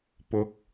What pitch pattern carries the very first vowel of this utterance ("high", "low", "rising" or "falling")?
rising